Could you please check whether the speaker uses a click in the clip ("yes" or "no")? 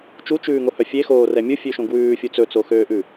no